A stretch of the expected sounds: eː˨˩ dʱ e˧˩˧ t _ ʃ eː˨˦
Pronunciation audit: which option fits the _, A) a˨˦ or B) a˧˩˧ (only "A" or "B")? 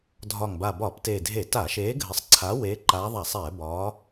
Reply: B